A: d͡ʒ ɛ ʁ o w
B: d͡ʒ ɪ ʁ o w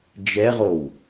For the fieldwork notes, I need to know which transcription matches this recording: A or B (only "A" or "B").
A